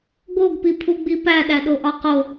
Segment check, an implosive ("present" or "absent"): present